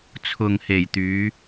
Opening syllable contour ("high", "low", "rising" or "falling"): low